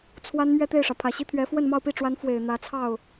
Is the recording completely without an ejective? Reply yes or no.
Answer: yes